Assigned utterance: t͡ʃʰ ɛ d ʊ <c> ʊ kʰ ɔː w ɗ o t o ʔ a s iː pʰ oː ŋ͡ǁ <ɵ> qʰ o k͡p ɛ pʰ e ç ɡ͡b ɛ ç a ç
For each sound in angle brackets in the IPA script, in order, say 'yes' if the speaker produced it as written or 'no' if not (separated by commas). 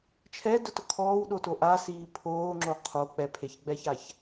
no, no